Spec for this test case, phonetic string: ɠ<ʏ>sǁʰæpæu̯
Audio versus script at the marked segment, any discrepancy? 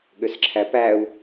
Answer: no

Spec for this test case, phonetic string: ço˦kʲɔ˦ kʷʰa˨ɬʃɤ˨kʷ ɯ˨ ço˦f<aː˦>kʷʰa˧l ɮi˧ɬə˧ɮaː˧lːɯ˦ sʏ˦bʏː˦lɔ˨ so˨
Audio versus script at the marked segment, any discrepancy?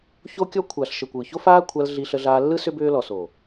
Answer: no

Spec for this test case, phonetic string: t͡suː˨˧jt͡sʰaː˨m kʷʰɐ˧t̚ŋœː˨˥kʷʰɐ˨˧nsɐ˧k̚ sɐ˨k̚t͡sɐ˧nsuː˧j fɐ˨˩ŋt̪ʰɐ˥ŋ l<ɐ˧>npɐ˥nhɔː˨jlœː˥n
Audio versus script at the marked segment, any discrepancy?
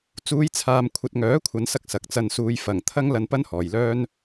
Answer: no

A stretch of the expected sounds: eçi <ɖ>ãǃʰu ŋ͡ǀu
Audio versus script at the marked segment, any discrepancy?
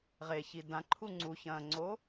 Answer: yes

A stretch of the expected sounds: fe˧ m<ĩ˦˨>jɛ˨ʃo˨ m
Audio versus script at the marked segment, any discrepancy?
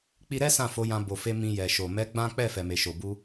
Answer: yes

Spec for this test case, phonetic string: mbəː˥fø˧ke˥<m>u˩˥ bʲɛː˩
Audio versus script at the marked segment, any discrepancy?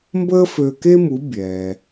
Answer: no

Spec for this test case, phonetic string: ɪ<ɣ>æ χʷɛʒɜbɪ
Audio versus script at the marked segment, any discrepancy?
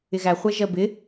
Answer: no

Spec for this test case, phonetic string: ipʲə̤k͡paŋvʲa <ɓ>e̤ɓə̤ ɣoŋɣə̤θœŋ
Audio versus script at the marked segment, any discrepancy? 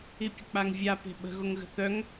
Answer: yes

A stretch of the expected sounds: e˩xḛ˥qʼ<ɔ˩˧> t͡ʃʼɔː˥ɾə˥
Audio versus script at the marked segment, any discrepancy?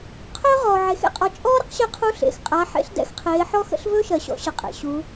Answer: no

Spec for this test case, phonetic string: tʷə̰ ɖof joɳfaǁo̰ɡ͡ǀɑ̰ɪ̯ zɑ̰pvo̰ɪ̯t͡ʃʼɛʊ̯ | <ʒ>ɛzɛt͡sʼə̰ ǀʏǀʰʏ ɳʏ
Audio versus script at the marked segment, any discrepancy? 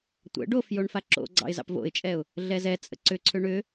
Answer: yes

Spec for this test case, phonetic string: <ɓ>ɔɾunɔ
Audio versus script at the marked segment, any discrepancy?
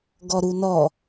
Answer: yes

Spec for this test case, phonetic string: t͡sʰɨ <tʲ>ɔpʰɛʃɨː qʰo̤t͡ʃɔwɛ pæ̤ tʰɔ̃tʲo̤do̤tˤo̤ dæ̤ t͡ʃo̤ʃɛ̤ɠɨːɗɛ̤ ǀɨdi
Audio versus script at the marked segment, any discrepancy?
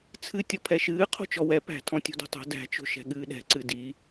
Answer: no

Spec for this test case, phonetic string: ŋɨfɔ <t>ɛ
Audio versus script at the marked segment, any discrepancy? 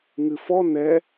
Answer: yes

